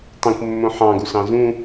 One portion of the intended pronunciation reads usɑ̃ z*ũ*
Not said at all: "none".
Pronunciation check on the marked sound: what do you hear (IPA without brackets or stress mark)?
ũ